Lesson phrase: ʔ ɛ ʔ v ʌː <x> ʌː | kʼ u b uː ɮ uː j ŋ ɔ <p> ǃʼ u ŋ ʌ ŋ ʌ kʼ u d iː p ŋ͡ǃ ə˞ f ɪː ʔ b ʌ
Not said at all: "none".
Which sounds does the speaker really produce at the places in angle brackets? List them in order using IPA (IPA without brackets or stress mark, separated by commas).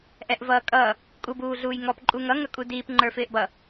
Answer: kʼ, p